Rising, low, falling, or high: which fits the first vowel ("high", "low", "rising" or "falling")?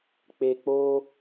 low